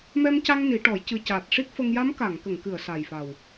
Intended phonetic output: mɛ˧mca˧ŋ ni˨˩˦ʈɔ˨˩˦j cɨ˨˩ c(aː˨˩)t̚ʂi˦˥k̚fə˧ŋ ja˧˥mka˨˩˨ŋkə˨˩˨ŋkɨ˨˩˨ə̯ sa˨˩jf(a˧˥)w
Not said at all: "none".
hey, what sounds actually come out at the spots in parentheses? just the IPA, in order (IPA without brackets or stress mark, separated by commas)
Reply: aː˨˩, a˨˩